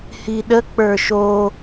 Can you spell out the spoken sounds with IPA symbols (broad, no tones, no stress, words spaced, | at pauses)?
hiɗə k͡pə˞ʃo